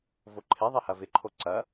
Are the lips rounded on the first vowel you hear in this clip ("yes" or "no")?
yes